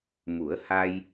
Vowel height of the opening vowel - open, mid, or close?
close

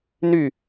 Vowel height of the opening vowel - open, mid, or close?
close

